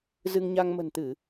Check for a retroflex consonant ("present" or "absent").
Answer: absent